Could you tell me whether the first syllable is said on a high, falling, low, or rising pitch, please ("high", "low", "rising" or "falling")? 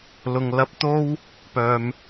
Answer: low